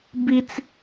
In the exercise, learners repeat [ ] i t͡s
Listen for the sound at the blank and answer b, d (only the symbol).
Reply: b